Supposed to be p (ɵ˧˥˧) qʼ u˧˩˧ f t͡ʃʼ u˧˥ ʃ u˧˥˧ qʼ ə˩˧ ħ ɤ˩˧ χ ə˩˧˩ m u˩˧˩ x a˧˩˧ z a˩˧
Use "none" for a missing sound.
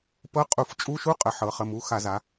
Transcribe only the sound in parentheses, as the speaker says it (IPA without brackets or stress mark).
ɤ˧˥˧